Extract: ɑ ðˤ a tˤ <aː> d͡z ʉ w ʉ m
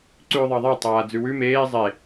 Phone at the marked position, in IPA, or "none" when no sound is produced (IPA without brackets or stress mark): aː